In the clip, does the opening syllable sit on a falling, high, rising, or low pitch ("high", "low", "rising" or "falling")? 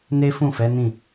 high